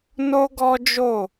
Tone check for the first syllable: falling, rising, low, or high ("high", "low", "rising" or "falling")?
high